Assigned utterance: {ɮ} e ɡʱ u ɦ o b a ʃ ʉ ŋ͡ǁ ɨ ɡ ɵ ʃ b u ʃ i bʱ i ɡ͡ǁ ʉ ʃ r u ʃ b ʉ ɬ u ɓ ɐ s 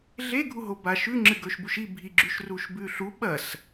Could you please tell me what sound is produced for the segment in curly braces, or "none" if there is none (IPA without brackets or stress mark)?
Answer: ɮ